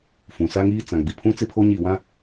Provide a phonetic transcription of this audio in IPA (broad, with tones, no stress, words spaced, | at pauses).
fũ˨sa˦ŋiː˦ t͡sã˨ɡ͡bi˨pʰũ˦ t͡sɪ˦pʰo˦ɲi˦˨ wã˦